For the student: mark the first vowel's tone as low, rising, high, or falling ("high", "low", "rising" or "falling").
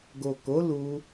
low